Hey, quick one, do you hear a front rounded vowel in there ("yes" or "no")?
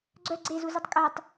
yes